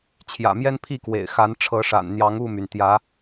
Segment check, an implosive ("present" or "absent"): absent